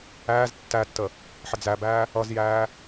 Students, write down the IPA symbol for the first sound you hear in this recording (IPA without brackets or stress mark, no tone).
æː